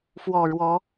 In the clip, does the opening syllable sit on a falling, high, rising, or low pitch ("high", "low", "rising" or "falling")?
low